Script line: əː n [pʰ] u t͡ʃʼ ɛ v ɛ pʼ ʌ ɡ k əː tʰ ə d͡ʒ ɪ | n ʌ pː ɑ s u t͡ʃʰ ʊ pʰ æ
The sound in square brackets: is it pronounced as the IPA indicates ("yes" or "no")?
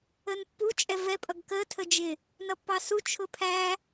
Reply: no